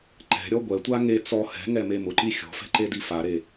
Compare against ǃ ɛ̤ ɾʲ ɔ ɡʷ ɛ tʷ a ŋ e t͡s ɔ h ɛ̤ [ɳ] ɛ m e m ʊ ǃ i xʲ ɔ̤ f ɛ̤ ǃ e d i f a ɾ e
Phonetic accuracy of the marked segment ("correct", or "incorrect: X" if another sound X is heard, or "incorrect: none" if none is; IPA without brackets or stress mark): incorrect: ŋ